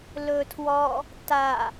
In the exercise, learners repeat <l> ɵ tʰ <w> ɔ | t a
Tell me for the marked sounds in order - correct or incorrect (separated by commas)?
correct, correct